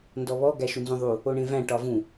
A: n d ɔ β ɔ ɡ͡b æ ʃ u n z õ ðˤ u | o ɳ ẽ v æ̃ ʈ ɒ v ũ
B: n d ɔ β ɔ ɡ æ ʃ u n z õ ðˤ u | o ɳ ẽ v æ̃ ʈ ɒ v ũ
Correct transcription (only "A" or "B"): B